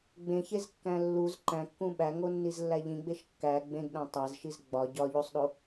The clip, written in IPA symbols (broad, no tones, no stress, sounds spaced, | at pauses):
ɡ͡b ẽ ç e z kː æ̃ lː u z ǃ æ̃ kː ũ ɓ æ ŋ o nː i z lː æ ʎ ĩ ɡ͡b e ʃ kː æ ɡ͡b ẽ ɡ ɗ æ̃ tˤ æ z ʃ i z ɡ͡b ɒ ɟ ɒ ʎ u sˤ ɗ o